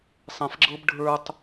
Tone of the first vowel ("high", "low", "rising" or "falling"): low